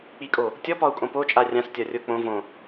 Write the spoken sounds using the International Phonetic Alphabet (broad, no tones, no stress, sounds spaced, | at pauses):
k͡p i kʼ o | tʲ ɔ p ɒ u̯ kʼ õ p o t͡ʃʼ a rʲ ã s tʲ ɒ rʲ o k͡p õ v õ